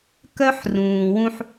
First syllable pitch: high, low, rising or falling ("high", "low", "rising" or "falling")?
high